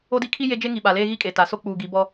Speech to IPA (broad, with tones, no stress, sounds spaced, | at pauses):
o˦ d i˦ kʰ i˦ j e˦ d͡ʒ e˦ ŋ i˨ ɓ a˨ l eː˦ ɣ i˦ kʼ e˨ t a˨˦ s o˦ k͡p uː˨ ɡ i˨˦ b ɔ˦